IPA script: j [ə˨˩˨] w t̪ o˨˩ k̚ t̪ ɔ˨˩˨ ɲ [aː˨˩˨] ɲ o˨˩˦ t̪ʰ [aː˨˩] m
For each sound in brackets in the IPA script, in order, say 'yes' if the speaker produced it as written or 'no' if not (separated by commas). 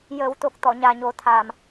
no, no, yes